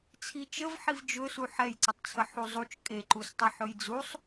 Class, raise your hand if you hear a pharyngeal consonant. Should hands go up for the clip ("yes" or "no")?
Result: yes